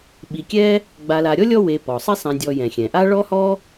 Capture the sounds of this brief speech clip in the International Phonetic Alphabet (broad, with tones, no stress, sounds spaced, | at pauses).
ɓ i˨ kʲ ɛ˥ | ɡ͡b a˨ l a˨ ɾʲ ɔ˥ lʲ ɔ˦ w e˨ p ɔ˩ sˤ i˦ sˤ ɛ̃˨ dʲ ɔ˨ j ɛ̃˩ xʲ ɛ̃˩ ʔ a˥ ɭ ɔ˥ h ɔ˥